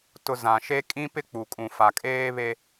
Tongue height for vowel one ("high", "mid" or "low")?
high